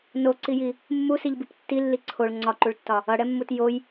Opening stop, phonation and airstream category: click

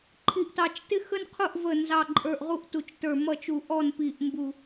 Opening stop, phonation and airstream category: click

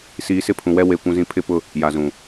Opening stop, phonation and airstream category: aspirated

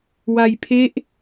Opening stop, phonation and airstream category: aspirated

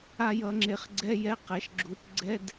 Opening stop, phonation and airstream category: click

